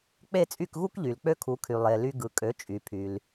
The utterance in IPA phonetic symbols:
k͡p e˥˩ t͡sʼ y˥˩ k ɣ u˥ k ʎ y˩ l k͡p ø˥ kʰ u˩˥ kʰ y˩ lˠ e˩ l y˧ ɡ ɯ˩ kʼ ø˩˥ t͡ʃʼ y˩ pʰ y˩ l

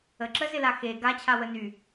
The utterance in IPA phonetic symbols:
ə ǁ ə z ɪ l a x e ɡ a t͡ɕʰ a w ə n y

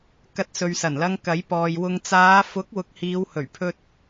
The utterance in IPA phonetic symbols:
k ɐ˧ t̚ s ɵ˨ ɥ s ɐ˨˩ n l ɐ˧ ŋ k ɐ˨˥ j p ɔː˨ j w ʊ˨ ŋ t͡s aː˨˧ f ʊ˨˥ k̚ w ʊ˨ k̚ h iː˨˧ w h ɵ˨˩ ɥ pʰ ɵ˧ t̚

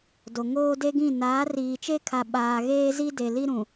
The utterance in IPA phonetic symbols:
d o˨ ŋ oː˦ d e˦ ɡ ĩ˦˨ n aː˨˦ r iː˨ t͡ʃ e˦ kʰ a˨ ɓ aː˨ ɣ eː˦ z i˦ d e˨ l i˦ ɾ ũ˨

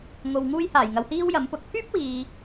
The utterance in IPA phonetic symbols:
ŋ o˨ w ŋ uː˧ j h aː˨˩ j ŋ ɐ˨ w h iː˥ w j ɐ˨˥ m p ʊ˨˥ k̚ t̪ʰ yː˥ p̚ w iː˨

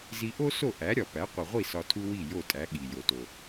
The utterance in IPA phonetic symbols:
z i˧ ʔ o˥ s o˥˩ ʔ æ˩˥ ɾʲ ɒ˩ p æ˩˥ qʷ i˩ ʁʷ i˥˩ s ɒ˧ tʰ u˥ w i˥˩ j o˥˩ tʼ æ˩˥ ɠ i˩ j o˩ t o˩

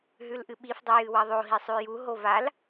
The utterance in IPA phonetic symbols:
ɦ ʉ l ʔ ɨ ɓ i f dˤ ɨ j ɨ w ɐ ðˤ o ɦ i sˤ ʉ j u ɦ o v a l

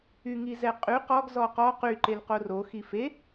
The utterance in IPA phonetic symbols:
y ŋ i z ɛ qʼ y q ɔ ɡ z ɔ q ɔ q y ǃ e l q o r o x i f e

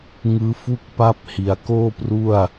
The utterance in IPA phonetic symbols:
ŋ ɯː˦˥ f u˥˩ k̚ p a˦˥ p̚ h i˩˦ a̯ k oː˥˩ p r u˥˩ a̯

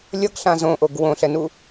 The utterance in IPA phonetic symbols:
lʲ ʌ ɡ ɬ ã z õ ʔ o ɡ w õ ɬ ɛ n u

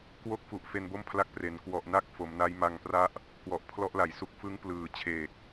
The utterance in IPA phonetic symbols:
k w o˦˥ k̚ f u˨˩ ʔ f e˧ n b o˥˩ m pʰ l a˦˥ k̚ p r e˩˦ n k w ɔ˨˩ ʔ n a˦˥ k̚ f o˩˦ m n a˦˥ j m a˧ ŋ p r a˦˥ ʔ | k w ɔ˨˩ ʔ pʰ l ɔ˦˥ ʔ l a˩˦ j s u˨˩ k̚ f ɯ˦˥ ŋ p l ɯː˨˩ t͡ɕʰ eː˨˩ k̚

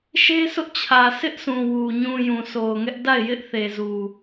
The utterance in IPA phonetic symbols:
ʃ e˦ sʰ ʊ˦ ʔ t͡ɕʰ ä˨ s ɪ˦ ʔ s ũ˨ w u˨ ɲ ũ˨ j ũ˨ s o˨ ʊ̯ ŋ ɛ˦ ʔ d a˦˨ ɪ̯ j ɪ˦ ʔ θ e˨ z u˨

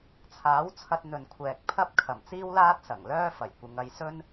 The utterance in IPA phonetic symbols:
t͡sʰ aː˨˥ w t͡sʰ ɐ˧ t̚ n̪ ɵ˨ n kʷʰ ɛː˨ k̚ pʰ ɐ˥ p̚ kʰ ɐ˨˩ m t͡s iː˥ w l aː˥ t̚ s ɐ˨˩ ŋ l œː˥ f ɐ˨˩ j kʷ ɪ˨˧ ŋ ɐ˨˧ j s ɵ˥ n

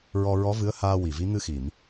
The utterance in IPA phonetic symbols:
ɹ ɔ˧ ɹ ɔ˧˥ v ɨ˧˥ ə̯ h aː˧ w i˨˩ v i˧˥ ŋ ɨ˧ x i˨˩˨ m

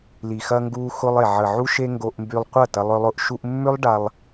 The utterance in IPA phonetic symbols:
l i˨ x ɐ˧ ŋ ɡ u˧ x ʊ˧ lˠ e˨ ʕ ə˨ ʕ u˧ ʃ e˧ ŋ ɡ o˧ ʔ m b y˧ lˠ qʷ ɐ˦˨ t ɐ˧ lˠ œ˧ lˠ ʊ˧ ʔ ʃ u˧ ʔ mː ʏ˦ lˠ ɖ a˧ lˠ

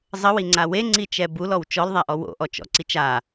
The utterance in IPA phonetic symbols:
zˤ ə w i ŋ͡ǀ a w e ŋ͡ǀ i t͡ʃ ɛ b u l ɔ w t͡ʃ ɔ l ðˤ a ʔ ɔ w o̰ ʔ ɔ t͡ʃ ɔ̰ ǀ i t͡ʃ a

